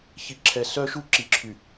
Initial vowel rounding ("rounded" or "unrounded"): unrounded